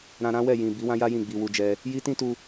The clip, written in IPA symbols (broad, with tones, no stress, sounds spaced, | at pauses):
ɾ ã˧ ɾ ã˦ w ɛ˦˨ j ĩ˨ b i˨˦ w ã˦ j a˦ j ĩ˦˨ ɡ͡b i˧ w u˧ d͡ʒ ɛ˧ | j i˦ t ĩ˦ t u˧